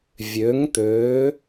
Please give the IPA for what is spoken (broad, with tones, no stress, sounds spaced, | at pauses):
vʲ ø˩˥ ŋ t̪ ø˩˥